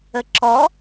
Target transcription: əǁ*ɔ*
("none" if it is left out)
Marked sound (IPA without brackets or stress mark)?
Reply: ɔ